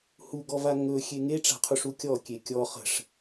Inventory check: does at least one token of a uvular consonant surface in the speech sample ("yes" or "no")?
yes